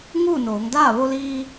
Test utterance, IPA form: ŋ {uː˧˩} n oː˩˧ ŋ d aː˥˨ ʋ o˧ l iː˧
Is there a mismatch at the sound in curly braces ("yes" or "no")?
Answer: yes